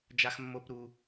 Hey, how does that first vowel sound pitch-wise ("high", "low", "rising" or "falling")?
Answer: high